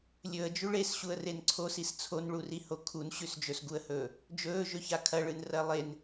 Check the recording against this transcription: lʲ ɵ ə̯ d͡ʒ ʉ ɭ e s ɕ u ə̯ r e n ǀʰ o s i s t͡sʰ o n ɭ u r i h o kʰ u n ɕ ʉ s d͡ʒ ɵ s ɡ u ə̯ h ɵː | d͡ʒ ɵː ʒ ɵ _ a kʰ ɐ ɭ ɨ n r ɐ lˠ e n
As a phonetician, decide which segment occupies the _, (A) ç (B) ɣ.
A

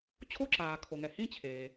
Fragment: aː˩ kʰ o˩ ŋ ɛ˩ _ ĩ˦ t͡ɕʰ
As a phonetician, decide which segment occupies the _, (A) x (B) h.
B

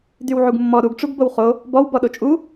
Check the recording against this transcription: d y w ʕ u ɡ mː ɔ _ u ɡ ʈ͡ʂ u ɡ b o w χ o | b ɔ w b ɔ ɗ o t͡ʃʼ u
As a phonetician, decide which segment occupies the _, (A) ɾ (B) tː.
A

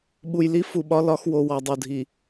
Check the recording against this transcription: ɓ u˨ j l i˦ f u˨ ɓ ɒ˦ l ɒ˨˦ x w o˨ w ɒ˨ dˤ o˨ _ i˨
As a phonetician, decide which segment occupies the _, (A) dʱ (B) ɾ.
A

